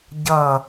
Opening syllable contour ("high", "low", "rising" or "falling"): falling